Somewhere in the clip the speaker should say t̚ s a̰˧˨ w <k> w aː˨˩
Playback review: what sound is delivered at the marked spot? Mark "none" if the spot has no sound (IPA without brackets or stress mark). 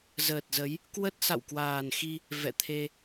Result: k